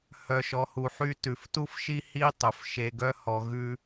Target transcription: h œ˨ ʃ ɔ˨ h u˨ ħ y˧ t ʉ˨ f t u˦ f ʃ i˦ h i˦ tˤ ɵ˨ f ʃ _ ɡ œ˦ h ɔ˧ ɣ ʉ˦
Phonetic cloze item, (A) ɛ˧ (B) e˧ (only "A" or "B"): B